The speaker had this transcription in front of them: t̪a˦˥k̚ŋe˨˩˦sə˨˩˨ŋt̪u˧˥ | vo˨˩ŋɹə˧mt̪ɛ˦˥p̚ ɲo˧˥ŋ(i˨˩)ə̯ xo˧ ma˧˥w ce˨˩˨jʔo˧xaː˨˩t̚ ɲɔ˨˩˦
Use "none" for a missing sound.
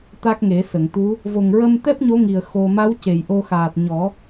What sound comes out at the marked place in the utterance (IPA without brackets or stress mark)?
i˨˩